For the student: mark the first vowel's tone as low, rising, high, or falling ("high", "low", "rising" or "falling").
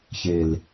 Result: low